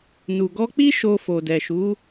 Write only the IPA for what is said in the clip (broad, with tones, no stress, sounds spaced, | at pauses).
n u˨ ɡ ɔ˧ k͡p i˦ ʃ o˧ f o˨ d ɛ˨ ʃ u˨˦